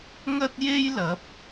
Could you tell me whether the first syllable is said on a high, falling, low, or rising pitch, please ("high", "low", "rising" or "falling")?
high